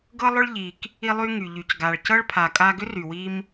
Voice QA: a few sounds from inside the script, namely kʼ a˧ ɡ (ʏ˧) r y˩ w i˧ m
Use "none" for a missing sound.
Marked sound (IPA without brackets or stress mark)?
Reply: ʏ˥